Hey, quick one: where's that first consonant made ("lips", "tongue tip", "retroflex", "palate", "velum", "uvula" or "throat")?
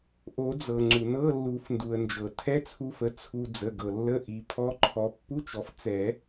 throat